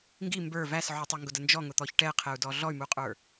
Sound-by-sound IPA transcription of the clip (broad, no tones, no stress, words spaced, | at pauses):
ŋɡi mbə˞ væs ʕutˤəŋɡʊdə nd͡ʒɔŋʊt̪ɔç ʈɛqʰɛu̯dɔ ɮɔy̯muqʼə˞